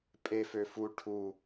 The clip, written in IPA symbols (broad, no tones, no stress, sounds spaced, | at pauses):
pʼ e f ø f u ʈʰ u